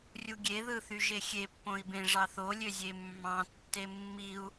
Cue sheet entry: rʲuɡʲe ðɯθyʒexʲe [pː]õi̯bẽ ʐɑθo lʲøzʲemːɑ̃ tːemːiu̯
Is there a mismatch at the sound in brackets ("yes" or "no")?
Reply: no